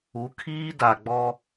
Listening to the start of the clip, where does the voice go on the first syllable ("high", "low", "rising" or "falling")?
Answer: rising